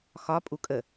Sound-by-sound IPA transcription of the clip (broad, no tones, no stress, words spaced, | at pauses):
xɒ pʼukʼə